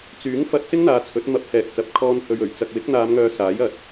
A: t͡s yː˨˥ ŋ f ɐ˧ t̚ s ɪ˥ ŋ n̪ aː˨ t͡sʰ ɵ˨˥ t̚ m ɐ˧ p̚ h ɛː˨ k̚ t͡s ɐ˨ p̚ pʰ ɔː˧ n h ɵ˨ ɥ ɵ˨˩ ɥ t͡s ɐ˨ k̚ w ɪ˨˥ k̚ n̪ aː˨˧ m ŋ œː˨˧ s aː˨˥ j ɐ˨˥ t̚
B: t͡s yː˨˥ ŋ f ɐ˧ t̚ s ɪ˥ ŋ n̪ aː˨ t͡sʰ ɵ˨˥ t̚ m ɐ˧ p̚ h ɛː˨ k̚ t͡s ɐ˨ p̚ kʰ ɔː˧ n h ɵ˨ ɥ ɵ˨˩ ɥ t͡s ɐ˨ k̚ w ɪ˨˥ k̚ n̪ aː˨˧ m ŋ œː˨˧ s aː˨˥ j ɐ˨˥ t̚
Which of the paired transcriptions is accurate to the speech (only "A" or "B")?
B